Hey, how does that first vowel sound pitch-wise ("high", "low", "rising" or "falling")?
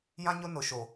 high